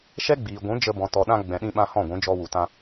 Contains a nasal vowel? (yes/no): yes